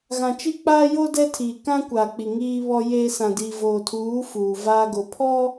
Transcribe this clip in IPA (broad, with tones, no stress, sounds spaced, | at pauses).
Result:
ɣ ã˨ t͡ʃ i˦ k͡p aː˦ j o˦ d ɛ˦ tʰ iː˨ k ã˦ kʷ aː˨ k͡p i˨ ŋ iː˦ β ɔ˦ j eː˦ s ã˨ d iː˨ v oː˨ tʰ uː˨˦ f uː˨ v aː˦ ɡ o˨ pʰ ɔ˦